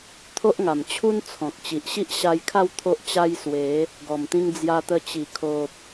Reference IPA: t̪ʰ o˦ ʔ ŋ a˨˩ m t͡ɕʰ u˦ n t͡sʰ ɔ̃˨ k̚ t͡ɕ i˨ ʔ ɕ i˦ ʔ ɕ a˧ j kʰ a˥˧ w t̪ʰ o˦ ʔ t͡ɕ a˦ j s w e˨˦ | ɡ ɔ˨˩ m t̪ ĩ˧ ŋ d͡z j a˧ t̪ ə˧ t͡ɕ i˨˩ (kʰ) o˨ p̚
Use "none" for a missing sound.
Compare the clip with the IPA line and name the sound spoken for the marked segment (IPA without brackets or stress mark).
kʰ